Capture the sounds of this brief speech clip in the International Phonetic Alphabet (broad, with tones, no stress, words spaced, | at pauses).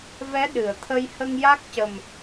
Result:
vɛ˧˥ ɗɨ˨˩˨ə̯t̪ʰə˧j hə˧ŋja˦˥k̚cə˨˩m